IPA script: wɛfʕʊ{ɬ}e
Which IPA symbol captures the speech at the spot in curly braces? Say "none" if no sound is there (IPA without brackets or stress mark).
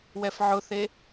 θ